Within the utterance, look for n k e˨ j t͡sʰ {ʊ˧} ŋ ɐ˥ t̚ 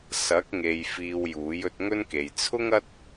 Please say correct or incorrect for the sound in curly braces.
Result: incorrect